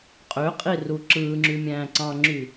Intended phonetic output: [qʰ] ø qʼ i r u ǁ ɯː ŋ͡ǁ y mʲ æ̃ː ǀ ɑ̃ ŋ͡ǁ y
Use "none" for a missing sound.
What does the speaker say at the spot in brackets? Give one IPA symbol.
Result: qʼ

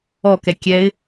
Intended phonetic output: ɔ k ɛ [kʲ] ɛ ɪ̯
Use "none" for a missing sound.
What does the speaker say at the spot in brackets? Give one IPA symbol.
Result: kʲ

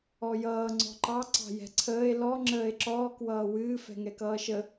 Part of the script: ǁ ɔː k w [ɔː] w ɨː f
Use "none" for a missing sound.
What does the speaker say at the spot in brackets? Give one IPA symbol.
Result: ʌː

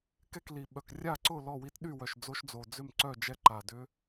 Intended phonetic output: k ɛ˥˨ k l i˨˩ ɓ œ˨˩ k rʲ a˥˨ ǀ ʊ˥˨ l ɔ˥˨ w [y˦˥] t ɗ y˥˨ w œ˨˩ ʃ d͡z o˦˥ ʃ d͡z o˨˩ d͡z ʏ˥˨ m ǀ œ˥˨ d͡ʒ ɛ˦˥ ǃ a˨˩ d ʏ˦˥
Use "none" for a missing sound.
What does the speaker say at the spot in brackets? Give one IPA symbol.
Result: i˦˥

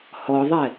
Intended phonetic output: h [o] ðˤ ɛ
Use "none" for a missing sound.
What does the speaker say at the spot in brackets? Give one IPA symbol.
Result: ɔ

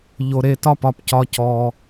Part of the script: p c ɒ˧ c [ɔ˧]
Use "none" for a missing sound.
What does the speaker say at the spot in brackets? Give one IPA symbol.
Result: ɔ˧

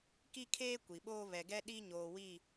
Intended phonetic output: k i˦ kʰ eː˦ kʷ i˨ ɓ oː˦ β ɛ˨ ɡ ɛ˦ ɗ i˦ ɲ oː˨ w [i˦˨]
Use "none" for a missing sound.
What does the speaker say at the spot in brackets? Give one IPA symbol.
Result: i˦˨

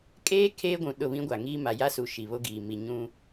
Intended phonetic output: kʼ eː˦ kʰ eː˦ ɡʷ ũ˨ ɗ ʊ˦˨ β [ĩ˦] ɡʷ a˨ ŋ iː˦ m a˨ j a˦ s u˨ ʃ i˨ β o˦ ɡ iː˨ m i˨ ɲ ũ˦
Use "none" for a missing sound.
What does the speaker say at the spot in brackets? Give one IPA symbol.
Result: ĩ˦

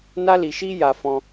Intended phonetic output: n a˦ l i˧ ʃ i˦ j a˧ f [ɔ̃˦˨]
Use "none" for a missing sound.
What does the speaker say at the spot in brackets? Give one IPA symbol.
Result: ɔ̃˧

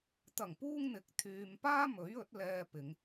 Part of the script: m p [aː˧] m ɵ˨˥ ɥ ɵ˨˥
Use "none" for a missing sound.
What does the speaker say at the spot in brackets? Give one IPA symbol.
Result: aː˥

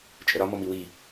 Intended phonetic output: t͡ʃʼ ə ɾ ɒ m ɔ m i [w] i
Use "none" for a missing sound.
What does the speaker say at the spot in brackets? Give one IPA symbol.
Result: w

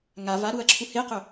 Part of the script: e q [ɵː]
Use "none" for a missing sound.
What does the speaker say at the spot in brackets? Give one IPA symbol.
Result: ɵ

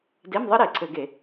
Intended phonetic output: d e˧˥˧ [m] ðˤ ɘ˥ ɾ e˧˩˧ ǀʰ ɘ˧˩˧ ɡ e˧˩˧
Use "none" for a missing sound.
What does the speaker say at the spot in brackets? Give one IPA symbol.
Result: m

